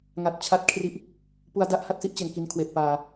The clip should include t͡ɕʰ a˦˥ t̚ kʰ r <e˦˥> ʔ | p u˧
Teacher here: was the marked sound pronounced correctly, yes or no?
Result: no